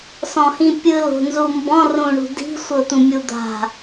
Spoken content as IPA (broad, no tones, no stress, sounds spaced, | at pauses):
s ɔ̃ h ĩ pʲ ɯ l o̤ n z u m b ɔ̃ r ũ ɳ ṳ d i̤ sʷ ɤ t̪ ũ mʲ u d̪ a̤